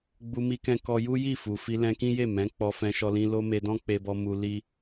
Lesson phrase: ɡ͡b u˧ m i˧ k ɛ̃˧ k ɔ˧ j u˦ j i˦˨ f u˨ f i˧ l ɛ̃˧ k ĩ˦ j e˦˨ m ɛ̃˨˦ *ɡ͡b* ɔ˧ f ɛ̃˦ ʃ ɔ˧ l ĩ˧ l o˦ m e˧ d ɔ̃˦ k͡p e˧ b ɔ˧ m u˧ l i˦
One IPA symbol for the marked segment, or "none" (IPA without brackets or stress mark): k͡p